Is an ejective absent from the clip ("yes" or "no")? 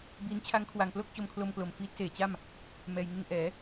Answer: yes